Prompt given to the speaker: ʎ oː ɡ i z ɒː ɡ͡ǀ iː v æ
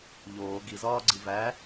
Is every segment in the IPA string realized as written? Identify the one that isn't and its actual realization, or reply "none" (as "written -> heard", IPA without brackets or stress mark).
iː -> i